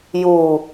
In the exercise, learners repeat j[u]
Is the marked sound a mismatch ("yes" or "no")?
no